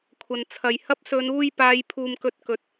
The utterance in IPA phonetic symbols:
kʷʰ ɐ˨ n t͡sʰ ɐ˨ j h ɐ˥ p̚ s ɵ˨˧ n uː˧ j p aː˨˧ j pʰ uː˨ m k ɵ˧ t̚ k ɵ˨˥ t̚

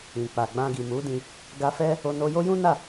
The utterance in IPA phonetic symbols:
ĩ˨ k͡p a˨ ɡ͡b ã˧ ɡ i˨ m u˨˦ d ĩ˧ | ɡ a˧ f ɛ˦ | o˧ n o˧ j o˦ j ũ˦ n a˦˨

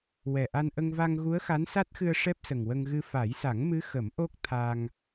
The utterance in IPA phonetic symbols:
w ɛ˨˩ ʔ a˧ n ʔ ə˧ ŋ v a˧ ŋ ɣ u˧˥ ə̯ x a˧˥ n s a˦˥ t̚ x ɨ˧ ə̯ ʂ ɛ˦˥ p̚ s ə˨˩ ŋ w ə˧ ŋ ɣ ɨ˧ f a˨˩˦ j s a˨˩˦ ŋ m ɨ˧˥ x ə˨˩˦ m ʔ o˦˥ k̚ t̪ʰ a˧ ŋ

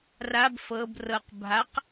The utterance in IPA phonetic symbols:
r a b f ɤ b r ɤ q bʱ a q

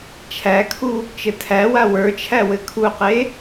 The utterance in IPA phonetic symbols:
t͡ʃʰ æ kʰ u | t͡ʃ ɘ tʰ æ w a w ə˞ t͡ʃʰ æ w ɘ kʰ u q e

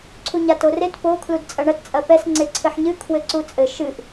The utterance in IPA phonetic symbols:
ǀʰ u ɲ a t o r e t p o kʰ l u d t͡sʼ ɐ ɳ ɐ t t͡sʼ ɐ p ɛ s ŋ͡ǀ e ǀʰ ɘ ħ ɲ ɨ kʰ w ɘ ǀ u t͡sʼ ɘ ʃ ɨ ʔ

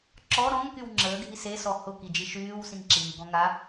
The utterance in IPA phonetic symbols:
ǁ ɔ ɾ ɔ̃ ŋ k y w ŋ͡ǁ əː ɡʱ i s e s ɔ h ʊ k i d͡ʒ i ʃ yː w s ĩ ŋ ǁ iː ɡ ɔ̃ ŋ a

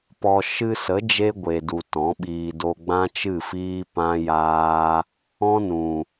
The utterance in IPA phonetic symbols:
p ɔ˨ ʃ ɨ˧ s ə˨˦ d͡ʒ e˦ ɡʷ e˨ d u˨ t ɔ̃˨˦ ɓ iː˧ d o˧ ɡ͡b ã˦ t͡ʃ ɨ˦˨ f iː˦ p ã˦ j aː˦ | ɔ̃˦ n ũ˨

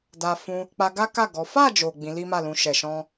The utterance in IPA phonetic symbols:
d a˧ f ũ˧ | k͡p a˧ ɡ a˦ k a˦˨ ɡ ɔ˨˦ f a˦˨ d͡ʒ o˨ ɡ͡b ĩ˨˦ l i˦ m a˦˨ l ũ˧ ʃ ɛ˨ ʃ ɔ̃˧

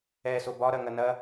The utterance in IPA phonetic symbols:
ɛ s o b ɒ ɾ ɐ ŋ ɐ n ɐ

